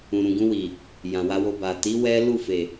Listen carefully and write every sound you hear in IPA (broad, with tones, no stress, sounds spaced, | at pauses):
ũ˨ ɾ ũ˨ ɡ ũ˧ w i˨ | j ã˨ w a˧ w o˧ b a˨ t i˨˦ w ɛ˦ l u˦˨ f e˨